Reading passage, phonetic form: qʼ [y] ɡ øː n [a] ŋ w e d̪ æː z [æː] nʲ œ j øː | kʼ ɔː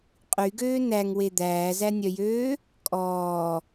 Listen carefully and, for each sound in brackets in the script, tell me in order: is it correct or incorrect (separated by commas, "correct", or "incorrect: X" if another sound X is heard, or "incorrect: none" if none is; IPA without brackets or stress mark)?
correct, incorrect: æ, incorrect: æ